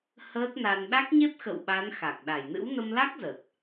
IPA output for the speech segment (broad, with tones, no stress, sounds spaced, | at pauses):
h əː˦˥ t̚ n a˧ n ɗ a˦˥ k̚ ɲ e˦˥ p̚ x ə̰˧˨ w ɓ a˨˦ n x a˨˩ k̚ ɗ a˧˩ j n ɨ̰˧˥ w n ə˧ m l a˦˥ k̚ z ə˨˩ t̚